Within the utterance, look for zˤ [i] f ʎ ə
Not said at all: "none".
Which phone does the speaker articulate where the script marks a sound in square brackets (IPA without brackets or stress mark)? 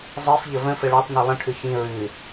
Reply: i